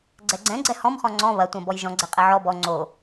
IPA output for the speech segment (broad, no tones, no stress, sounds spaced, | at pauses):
ɡ͡ǀ ɛ ɡ͡ǀ ɛ̃ ɡ͡ǀ ɛ h ɔ̃ m χ ɔ̃ ŋ͡ǀ ɔ̃ β ɐ tʷ ɐ̃ b ɔ j ʒ ɔ̃ ɡ͡ǀ ɛ qʼ ɛ ʕ ɔ b ɔ ŋ͡ǀ o